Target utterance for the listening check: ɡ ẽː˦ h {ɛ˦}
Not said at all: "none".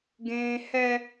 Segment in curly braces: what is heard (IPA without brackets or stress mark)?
ɛ˦